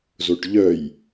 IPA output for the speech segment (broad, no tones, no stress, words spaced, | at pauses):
zoʈʎœj